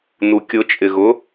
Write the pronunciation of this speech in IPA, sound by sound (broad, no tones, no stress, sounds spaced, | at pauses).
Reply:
n u kʲ ʊ t͡ʃʼ ɪ ɣ ʊ